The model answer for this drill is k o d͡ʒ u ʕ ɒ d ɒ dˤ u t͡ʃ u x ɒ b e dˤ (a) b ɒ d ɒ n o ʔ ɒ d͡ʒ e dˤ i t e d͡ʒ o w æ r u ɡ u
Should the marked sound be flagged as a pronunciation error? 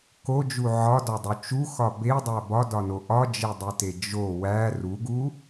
yes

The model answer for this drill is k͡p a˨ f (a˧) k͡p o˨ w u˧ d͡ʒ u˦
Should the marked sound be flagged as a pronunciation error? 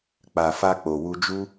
no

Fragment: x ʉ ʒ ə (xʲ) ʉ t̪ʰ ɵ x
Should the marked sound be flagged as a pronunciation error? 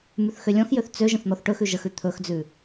yes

